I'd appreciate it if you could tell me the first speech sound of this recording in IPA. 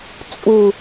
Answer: t͡sʼ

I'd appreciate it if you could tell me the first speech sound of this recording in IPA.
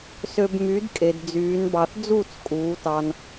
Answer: s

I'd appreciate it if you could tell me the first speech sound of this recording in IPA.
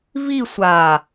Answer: v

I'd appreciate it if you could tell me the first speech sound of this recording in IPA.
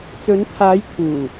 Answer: t͡s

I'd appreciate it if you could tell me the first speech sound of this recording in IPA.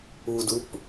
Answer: u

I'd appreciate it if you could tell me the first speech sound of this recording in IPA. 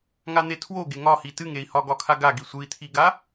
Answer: ŋ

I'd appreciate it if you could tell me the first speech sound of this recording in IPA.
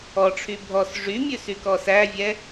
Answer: ɔ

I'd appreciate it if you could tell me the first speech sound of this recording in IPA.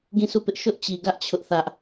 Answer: ɡ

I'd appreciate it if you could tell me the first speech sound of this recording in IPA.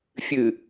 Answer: fʲ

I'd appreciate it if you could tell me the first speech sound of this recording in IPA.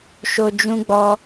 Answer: ʃ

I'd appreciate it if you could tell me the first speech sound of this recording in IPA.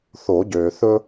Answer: θ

